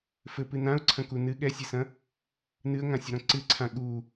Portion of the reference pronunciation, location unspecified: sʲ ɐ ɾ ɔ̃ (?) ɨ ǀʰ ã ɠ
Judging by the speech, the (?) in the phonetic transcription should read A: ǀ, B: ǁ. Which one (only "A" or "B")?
A